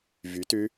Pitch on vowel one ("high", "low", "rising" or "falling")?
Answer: rising